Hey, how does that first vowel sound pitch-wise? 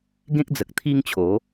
high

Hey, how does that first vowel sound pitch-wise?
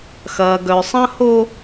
low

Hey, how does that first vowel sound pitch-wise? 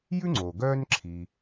high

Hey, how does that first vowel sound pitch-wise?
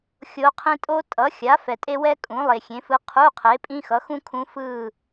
rising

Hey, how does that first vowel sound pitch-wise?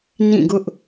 falling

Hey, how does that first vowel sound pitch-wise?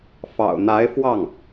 low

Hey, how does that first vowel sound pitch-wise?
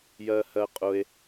high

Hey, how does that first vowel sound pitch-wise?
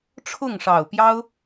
falling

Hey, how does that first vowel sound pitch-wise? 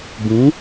rising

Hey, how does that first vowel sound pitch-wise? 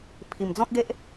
low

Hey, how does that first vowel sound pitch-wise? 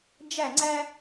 falling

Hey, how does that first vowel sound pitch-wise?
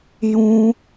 high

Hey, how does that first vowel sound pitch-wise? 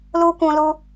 high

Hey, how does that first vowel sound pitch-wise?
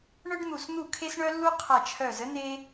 high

